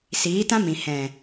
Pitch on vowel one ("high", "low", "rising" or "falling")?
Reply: rising